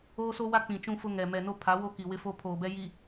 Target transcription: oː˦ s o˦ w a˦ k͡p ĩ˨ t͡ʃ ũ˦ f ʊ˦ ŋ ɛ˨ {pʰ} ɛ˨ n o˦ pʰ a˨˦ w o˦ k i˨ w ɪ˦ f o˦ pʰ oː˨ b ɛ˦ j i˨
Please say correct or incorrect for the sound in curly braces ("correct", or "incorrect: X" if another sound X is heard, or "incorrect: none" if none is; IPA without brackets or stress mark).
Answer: incorrect: m